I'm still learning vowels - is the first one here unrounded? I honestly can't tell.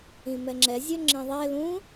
yes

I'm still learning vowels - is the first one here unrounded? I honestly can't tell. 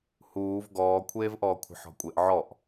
no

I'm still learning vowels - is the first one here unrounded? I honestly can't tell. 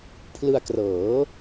yes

